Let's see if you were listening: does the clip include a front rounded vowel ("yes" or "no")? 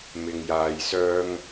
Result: yes